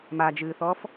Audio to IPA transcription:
m a d͡ʒ ɨː θ ɔː f

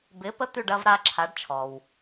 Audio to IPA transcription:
b ɪː˨˥ p ə˦ t̪ y˦˨ ɖ ɐː˦ v ɾ aː˦ ǁʰ a˨˥ ɖ t͡ʃʰ ɔ˨ w

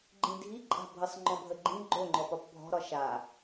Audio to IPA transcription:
ɡ͡ǃ ĩ dʱ i ǃʼ a̤ bʱ ə sˤ ŋ͡ǃ ɔ̃ bʱ ə ɡ͡ǃ ĩ ɡ͡ǃ o ŋ͡ǃ ɔ p ɒ p bʱ ɔ̤ ɾ ɒ ʃ a

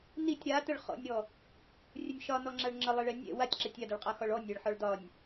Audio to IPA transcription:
n i tʲ ɾ a t ə ɭ χ ɔ̰ nʲ ɾ ɔ | rʲ ə nʲ ʃ ɒ n ɔ ŋ͡ǁ a ɭ ŋ͡ǁ ə lˠ ɛ ɭ ɛ nʲ ɛ̰ w a tʲ ǁ ɛ tʲ a d ə ɭ qʼ a x ɒ ɭ ɔ nʲ ɛ ɭ ħ ɔ ɭ d ɒ nʲ

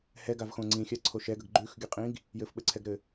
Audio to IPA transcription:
h ɛ ɡ a v x õ ŋ͡ǀ ĩ xʲ a ǀʰ o ʃ ɛ ɡ ə ɡ ɡ͡ǃ ʉ x ɡʲ ə qʼ ĩ ɡ | j ɘ f ɓ ɘ ǀʰ ɛ ɡ ɾ ɘ

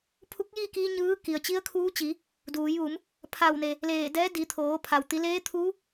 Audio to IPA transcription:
pʰ u˧˥ k̚ j iː˥˨ k iː˧ ɲ ɯː˧˥ k i˩ ə̯ t͡ɕ i˧˥ ə̯ kʰ uː˧˥ t͡ɕ i˩˧ | d uː˩˧ j ʋ u˩˧ m | pʰ a˧˩ w n e˩ | l eː˧˩ d ɛː˧˥ d i˩˧ t̪ʰ oː˩˧ pʰ a˩ w t̪ i˩˧ l eː˧˥ t̪ʰ uː˧˥

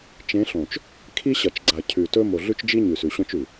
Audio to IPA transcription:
t͡ʃ ẽ˨˦ ɬ õ˨ t͡ʃ | kʰ i˦ ɕ ɐ˨ t͡ʃ ɡ͡ǀ a˨ cʰ ʉ˨ t ɵ˦ m o˨ ɮ ʉ˦ t͡ʃ d͡ʒ i˦ ɲ ʉ˨ s ʉ˨ ɕ õ˦ t͡ʃ ʉ˨

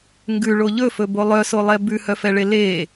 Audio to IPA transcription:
ŋ ɡ ʉ ɭ o ʎ ɵ f ɵ b o lˠ œ s o lˠ ɛ b ʉ h œ f ɛ ɭ e l e

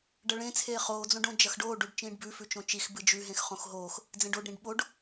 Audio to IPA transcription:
ɖ ɐ ɭ ẽ t͡sʰ eː χ oː d͡z õ ɖ õ d͡ʒ ɐ x ɖ oː ɖ u ɖ t͡ʃ ĩː ɖ b ʉ f ʉ t͡ʃ õ t͡ʃ i x b ɨ d͡ʒ ʉ ɦ ẽ x χ õ x ɦ oː x | d͡z ẽ ɖ o ɖ ɾ ĩ ɖ ɓ o ɖ

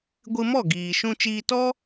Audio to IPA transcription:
ɡʷ ɨ˧ m ɔ˦˨ ɡ iː˨ ʃ ũ˧ t͡ʃ iː˧ t ɔ˦

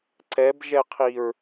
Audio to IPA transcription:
ǀ ɛ b ʒ ɛ qʰ i ɹ

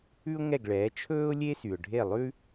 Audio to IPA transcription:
ʉ˥ ʊ̯ ŋ ɛ˥˩ ɡ ɭ ɛː˩˥ t͡ʃʰ ɵː˥ ʊ̯ lʲ e˥ s y˩ ʊ̯ ɖʱ e˥˩ lˠ ʉ˥

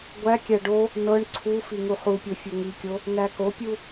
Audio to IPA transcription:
ɡʷ æ kʲ æ ɖ o | n ɤ ɳ ǀʰ u f i ŋ u χ u pʲ o fʲ o ŋ i kʲ o | n æ k o pʲ u

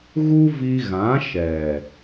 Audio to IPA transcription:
ɣ u˦ v i˧ ɣ ã˨˦ ʃ ɛ˨

